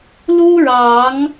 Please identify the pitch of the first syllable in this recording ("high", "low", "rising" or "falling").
high